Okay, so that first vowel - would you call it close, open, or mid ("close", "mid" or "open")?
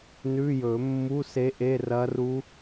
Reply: close